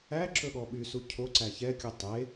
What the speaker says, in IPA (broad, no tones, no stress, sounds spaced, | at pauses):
æ ǁ ɵ ɠ ɔ ɓ y s u cʰ o ǀ æ ç ɛ kʲ u tˤ e